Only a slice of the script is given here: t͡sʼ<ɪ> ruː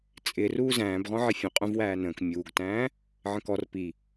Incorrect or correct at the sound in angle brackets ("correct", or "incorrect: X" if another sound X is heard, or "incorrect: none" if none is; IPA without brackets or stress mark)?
correct